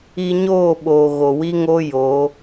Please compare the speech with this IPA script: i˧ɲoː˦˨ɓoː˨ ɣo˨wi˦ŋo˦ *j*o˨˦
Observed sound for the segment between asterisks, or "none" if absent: j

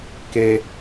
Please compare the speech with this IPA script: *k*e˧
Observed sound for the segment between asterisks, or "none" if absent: k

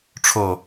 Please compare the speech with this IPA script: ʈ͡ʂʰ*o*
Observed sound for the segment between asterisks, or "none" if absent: o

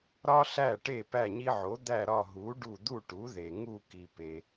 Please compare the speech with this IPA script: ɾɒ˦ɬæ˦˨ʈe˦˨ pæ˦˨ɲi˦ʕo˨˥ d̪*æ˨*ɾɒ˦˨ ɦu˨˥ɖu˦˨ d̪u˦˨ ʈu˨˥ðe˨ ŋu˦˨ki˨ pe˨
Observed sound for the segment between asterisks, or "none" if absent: æ˦˨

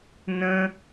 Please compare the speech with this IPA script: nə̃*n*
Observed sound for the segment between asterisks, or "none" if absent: none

